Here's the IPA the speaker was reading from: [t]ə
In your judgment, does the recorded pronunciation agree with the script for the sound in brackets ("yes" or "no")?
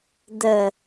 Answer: no